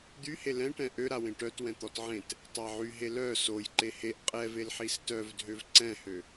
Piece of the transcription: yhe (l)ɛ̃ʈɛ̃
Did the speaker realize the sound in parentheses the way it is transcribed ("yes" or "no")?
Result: yes